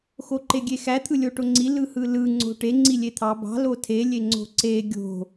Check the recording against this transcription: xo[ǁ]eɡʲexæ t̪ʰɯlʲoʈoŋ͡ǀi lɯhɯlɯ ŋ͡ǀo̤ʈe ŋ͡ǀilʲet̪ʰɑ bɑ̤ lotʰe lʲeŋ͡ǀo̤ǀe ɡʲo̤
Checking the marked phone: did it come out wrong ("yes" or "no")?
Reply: yes